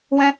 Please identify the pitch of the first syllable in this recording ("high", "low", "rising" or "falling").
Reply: high